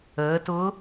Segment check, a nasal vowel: absent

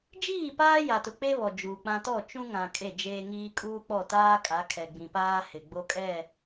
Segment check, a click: absent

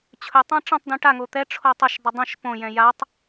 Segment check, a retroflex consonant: present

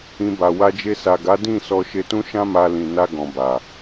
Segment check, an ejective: absent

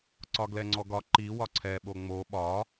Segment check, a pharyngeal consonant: absent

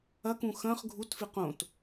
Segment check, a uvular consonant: present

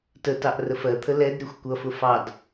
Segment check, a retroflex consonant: absent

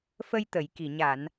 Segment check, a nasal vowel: absent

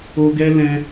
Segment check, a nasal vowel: present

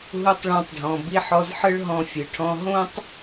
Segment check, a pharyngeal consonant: present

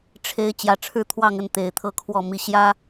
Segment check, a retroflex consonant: present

